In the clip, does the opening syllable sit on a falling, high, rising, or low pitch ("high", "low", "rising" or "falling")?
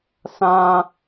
high